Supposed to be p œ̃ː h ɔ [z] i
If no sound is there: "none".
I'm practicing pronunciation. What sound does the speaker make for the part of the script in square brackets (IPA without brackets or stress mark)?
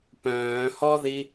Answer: ð